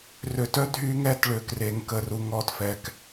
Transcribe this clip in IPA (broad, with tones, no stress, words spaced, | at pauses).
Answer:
rø˨tœ˦ dʱy˦ŋɛ˦t ɭø˨kre˨ŋ kə˨ru˨ŋɔ˦˨t fɛ˨k